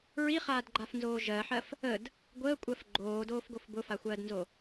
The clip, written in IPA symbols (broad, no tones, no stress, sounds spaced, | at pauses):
ɹ i χ aː d ɡ͡ǃ a f n z oː ʒ ɜ ħ ɜ f | ə d | ɡʷ əː kʷʼ ɜ f ɡ͡ǃ oː d oː f ɡ o f b ʊ f a xʷ ɜː d n z o